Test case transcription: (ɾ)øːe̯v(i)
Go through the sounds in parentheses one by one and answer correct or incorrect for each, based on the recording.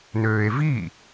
incorrect: n, correct

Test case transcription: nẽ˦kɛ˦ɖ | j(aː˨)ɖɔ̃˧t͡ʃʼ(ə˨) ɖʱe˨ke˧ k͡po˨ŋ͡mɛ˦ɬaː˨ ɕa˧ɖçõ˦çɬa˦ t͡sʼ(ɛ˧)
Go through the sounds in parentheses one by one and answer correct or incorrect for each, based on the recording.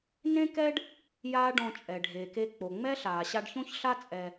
incorrect: aː˦, incorrect: ɛ˨, correct

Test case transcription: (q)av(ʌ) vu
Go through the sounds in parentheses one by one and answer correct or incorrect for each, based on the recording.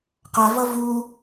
correct, correct

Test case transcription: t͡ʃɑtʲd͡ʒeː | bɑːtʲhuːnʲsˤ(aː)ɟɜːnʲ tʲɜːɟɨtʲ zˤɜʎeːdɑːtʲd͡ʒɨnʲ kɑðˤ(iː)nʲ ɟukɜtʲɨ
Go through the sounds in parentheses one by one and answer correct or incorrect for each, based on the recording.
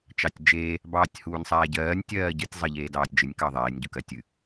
correct, incorrect: eː

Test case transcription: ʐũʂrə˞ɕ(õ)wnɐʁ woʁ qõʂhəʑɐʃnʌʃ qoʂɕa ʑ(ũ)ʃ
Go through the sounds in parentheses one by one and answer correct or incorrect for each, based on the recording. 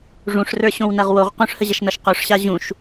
correct, correct

